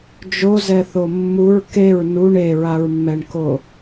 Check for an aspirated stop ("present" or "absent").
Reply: absent